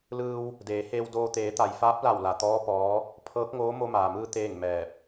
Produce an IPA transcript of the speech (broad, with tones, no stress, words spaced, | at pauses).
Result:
lɯː˧w | deː˩˧heː˧w doː˧ t̪eː˩˧t̪a˩jfaː˧˥p̚ la˧˩wla˩t̪ɔː˧˥ pɔː˧˥ | pʰɤː˧˥k̚ŋoː˧˥ mo˧maː˩mɯː˧ t̪eː˥˨ŋmɛː˧˩p̚